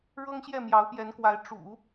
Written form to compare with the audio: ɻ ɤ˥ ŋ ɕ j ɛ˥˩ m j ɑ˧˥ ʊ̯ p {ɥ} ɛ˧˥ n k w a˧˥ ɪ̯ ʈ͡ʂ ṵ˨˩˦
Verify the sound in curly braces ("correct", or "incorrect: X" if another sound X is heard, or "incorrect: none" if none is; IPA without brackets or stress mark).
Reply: incorrect: j